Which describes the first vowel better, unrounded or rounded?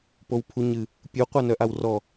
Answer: rounded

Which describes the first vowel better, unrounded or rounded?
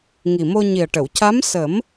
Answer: unrounded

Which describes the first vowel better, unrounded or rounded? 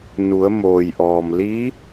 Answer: rounded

